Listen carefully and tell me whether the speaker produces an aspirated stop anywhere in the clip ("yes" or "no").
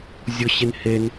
no